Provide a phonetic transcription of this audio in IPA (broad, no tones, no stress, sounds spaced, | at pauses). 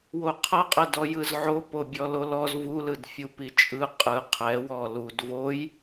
w o qʰ ɤ qʼ ɛ d ɔ j ɯ z ʕ o p o bʲ ɔ l o l ɔ z v u l ɯ d fʲ u p i t͡ʃʼ ɯ qʼ ɯ qʰ ɛ w ɔ l u d v o j